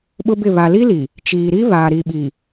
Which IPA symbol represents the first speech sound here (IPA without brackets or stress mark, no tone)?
ɓ